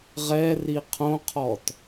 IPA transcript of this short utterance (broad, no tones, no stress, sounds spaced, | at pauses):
ʁ ɛ r i qʰ õ qʰ ɔ t